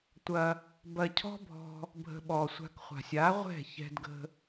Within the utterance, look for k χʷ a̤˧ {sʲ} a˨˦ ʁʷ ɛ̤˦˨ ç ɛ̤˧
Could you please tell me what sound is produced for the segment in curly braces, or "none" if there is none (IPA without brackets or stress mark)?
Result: sʲ